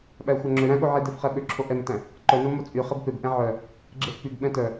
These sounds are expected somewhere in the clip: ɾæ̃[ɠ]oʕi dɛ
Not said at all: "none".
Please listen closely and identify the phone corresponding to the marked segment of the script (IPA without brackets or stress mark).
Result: ɠ